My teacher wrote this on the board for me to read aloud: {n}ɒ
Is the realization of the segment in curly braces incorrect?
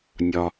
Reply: yes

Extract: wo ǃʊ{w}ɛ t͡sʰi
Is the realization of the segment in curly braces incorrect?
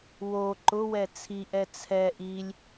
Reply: no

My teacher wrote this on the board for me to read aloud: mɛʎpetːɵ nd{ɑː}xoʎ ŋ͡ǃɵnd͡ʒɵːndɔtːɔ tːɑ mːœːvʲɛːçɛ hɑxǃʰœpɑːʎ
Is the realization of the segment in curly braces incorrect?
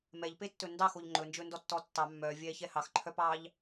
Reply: yes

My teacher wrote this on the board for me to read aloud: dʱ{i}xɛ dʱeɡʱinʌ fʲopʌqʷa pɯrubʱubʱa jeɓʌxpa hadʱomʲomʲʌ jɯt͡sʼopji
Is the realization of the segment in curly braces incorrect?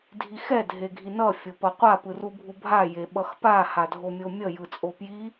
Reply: no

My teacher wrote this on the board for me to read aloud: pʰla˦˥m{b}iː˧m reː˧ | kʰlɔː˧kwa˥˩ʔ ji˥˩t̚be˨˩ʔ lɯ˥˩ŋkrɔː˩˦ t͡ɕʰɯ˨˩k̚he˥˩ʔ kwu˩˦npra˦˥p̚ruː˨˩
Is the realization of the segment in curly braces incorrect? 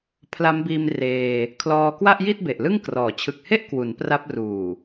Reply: no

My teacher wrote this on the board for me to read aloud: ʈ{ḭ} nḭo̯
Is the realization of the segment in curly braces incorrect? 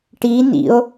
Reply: yes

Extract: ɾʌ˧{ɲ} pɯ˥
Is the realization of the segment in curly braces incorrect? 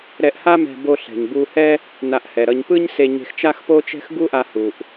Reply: no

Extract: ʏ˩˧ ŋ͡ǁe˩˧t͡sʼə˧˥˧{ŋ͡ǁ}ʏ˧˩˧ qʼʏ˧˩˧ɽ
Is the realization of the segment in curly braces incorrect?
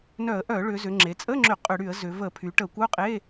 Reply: no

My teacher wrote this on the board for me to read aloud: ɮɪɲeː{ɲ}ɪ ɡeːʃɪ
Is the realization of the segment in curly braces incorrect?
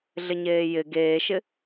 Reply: yes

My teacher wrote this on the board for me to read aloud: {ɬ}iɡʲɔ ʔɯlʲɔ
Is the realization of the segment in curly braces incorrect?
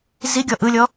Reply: yes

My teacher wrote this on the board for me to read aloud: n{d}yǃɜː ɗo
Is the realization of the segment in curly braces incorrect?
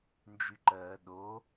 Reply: yes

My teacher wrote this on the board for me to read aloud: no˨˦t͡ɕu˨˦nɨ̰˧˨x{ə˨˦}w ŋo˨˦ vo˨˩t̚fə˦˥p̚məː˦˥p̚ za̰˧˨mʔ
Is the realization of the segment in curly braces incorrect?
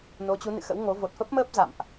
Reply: yes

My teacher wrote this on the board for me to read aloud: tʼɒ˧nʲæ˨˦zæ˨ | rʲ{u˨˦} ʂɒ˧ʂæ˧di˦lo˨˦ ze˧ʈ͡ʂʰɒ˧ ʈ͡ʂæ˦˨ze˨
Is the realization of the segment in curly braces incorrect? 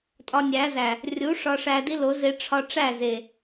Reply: no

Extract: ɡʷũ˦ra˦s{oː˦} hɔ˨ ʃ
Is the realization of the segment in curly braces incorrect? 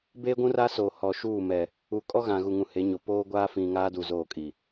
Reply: yes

